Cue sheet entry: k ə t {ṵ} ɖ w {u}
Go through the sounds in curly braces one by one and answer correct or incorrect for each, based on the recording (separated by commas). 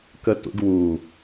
correct, correct